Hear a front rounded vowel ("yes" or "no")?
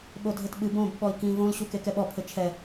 no